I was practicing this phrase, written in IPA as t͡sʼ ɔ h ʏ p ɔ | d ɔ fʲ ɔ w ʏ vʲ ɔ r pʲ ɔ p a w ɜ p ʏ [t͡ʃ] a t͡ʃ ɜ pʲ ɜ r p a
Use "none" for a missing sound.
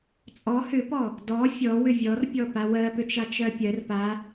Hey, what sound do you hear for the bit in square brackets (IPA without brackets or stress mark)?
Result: t͡ʃ